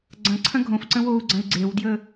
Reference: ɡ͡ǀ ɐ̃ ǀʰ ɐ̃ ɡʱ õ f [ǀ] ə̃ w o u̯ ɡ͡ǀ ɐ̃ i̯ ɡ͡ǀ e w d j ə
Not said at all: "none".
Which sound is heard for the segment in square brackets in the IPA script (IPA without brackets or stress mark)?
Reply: ǀ